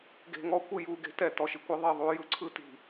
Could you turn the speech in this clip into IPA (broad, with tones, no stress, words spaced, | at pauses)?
ɡe̤˨ŋɔ˦ kʷɯ˨ ju˨ɡe̤˦tɛ˨ tɔ˨ʃi˨kʷɯ˦ ðˤe˨ ðˤu˦ jɯ˦ǀʰɯ˦ ti̤˨